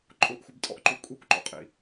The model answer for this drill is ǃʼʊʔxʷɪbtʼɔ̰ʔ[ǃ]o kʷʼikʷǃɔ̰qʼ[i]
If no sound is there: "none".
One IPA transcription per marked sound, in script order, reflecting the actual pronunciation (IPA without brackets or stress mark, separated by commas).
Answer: ǃ, ḭ